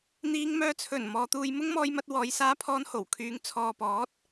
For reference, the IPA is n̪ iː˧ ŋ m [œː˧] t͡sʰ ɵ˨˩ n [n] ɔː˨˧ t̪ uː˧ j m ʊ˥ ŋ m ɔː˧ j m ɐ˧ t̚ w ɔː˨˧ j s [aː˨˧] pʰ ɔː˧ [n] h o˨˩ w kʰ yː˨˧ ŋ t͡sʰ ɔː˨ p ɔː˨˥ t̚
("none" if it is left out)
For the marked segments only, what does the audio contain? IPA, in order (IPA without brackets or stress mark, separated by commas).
œː˧, m, aː˧, n